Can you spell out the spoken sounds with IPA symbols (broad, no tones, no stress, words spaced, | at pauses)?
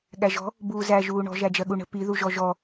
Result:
ɠæʒɔ̤ | buːzæ ʒuːɳɔ̤ ʒæd͡ʒɜɠuɳə̤ piðuʒɔ ʒɔ